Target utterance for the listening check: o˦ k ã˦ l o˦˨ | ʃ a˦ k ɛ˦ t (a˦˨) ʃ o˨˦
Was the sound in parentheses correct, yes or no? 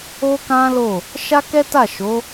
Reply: yes